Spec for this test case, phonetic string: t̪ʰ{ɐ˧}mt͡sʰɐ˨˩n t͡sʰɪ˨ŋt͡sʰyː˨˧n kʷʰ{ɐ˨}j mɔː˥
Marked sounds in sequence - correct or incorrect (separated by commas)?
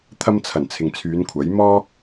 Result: correct, incorrect